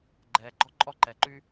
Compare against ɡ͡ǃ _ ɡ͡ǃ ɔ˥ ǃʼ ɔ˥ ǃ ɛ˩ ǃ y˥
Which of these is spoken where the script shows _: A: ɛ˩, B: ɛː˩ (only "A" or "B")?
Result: B